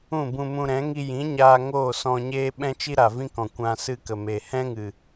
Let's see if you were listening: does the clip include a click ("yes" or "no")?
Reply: no